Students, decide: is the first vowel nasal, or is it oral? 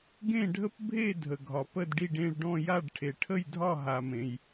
nasal